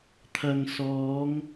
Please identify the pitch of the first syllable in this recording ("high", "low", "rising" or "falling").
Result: low